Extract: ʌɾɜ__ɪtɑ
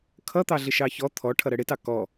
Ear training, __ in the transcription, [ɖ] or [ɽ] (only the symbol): ɽ